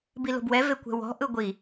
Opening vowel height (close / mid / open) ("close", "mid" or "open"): close